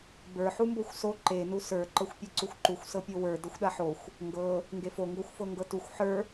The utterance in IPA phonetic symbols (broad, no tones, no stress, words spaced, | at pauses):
bə˞ ħumboxʷso ǃe nusə˞ ǃɤxʷpʲɤǀuxʷǃuxʷ sɤpʲowə˞ dɤxʷɗaħoxʷ | ŋɡɤ | ŋɡefo ŋɡoxʷfɤŋɡɤtuxʷ ħə˞